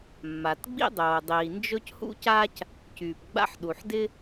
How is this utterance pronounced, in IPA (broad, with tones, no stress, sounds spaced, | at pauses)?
mː a˩ t ɡ͡b ḭ˥ dˤ oː˩ dˤ iː˩ n d͡ʒ ɵ˥ c h ṵ˥ c aː˥ c | c yː˩ p ɡ͡b a̰˥ ħ ɗ u˩ ħ d ɪ˥